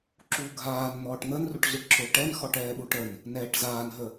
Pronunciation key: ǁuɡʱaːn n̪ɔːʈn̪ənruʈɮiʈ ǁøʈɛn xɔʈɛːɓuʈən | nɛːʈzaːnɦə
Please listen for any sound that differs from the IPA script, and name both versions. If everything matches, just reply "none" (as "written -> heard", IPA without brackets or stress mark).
none